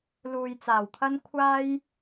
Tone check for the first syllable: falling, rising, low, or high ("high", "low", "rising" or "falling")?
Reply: low